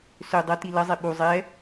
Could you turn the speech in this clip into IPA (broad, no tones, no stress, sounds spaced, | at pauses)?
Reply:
s ø dˤ ɐ t i l ɐ zˤ e ɓ u zˤ ɛ